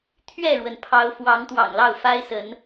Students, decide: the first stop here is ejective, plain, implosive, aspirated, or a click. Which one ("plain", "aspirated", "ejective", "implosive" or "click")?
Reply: aspirated